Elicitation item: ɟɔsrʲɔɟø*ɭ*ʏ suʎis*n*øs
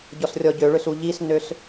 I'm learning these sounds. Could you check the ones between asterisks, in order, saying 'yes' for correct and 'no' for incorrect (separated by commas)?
yes, yes